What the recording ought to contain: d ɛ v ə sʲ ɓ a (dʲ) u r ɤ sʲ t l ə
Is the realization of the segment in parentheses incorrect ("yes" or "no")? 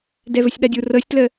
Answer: no